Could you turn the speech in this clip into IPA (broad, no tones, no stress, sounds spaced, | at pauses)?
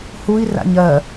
h u i̯ r a̰ ɲ ɜ